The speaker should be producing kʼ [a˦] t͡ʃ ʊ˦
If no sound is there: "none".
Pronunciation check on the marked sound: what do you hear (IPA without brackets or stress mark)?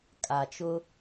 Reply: a˨